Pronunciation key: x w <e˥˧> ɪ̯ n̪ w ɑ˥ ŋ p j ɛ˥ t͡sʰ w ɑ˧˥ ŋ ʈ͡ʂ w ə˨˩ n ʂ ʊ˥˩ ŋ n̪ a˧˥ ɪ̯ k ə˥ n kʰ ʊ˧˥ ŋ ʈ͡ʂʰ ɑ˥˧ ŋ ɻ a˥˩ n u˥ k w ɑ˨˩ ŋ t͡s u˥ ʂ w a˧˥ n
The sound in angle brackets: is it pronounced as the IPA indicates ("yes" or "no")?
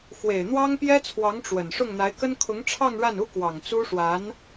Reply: no